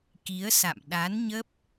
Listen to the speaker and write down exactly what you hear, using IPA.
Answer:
ki˨˦ə̯sa̰˧˨m ɗa˨˦n ɲə˦˥p̚

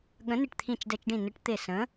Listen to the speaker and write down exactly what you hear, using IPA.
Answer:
ɠə̃˨˥nɪ˧˩ʈt̪ʰĩ˧˩t͡ʃ dɛ˧˩t͡ʃɖĩ˧˩nɯ˨˥ʈ t̪ɪ˧˩ sə̃˨˥

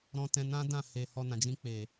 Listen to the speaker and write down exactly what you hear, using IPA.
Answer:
ɾɔ̃˧tɛ̃˧nã˦dã˦˨ he˨ hɔ˧nã˨d͡ʒĩ˧ k͡pe˨

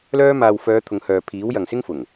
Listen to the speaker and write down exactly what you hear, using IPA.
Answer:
lœː˥ maː˨wfœː˨˧ t̪ʰʊ˨˧ŋhœː˨ pʰiː˨˥wjɐ˨ŋsɪ˥ŋfʊ˨˩ŋ

